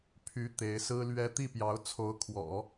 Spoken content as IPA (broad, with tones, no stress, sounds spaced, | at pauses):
pʰ y˧˥ t̪ e˧˥ ɪ̯ s ɹ̩˥ l ɥ ɛ˥ t̪ i˥˩ p j ɑ˧˥ ʊ̯ t͡sʰ o˧˥ ʊ̯ kʰ w ɔ̰˨˩˦